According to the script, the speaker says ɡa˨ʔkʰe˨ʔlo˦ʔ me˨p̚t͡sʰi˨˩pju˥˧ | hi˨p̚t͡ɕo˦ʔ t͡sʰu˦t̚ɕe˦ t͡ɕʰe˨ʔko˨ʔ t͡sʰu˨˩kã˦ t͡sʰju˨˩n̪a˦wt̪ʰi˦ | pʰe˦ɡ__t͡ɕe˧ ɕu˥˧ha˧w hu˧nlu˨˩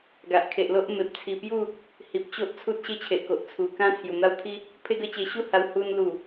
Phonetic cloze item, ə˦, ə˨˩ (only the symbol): ə˦